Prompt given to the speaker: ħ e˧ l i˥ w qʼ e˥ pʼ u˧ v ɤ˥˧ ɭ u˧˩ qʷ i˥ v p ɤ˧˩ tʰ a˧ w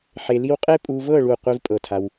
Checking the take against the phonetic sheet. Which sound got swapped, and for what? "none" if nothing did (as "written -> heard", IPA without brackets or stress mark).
p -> pʼ